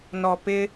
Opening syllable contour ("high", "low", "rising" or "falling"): low